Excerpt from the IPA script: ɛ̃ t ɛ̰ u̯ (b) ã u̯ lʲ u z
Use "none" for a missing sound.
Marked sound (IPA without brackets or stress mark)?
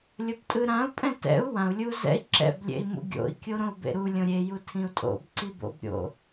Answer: w